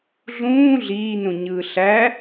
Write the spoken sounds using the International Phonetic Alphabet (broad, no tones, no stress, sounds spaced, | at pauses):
ɮ ũː ɮ iː n ũ ɲ ɯː ɬ æ